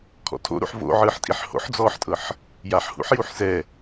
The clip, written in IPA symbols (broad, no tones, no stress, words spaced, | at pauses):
kʰɔ̰tʰo̰ ɾṵħvo̰ʕɯːħtʼiħ ho̰ħd͡zɔːħtʼɤħ | jaħhṵħjuħ sɛ